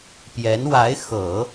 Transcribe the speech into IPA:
p j ɛ˧˥ n w a˧˥ ɪ̯ x ɤ˨˩˦

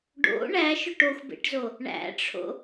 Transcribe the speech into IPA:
ɖ o̰ ɳ æ ʃ ʊ ʈ o xʷ b ḛ ʈ z o | ɳ æ̰ ʈ͡ʂʰ o̰

